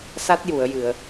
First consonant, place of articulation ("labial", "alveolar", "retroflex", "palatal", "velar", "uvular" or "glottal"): alveolar